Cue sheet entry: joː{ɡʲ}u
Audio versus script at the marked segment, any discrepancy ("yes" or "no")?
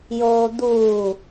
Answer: yes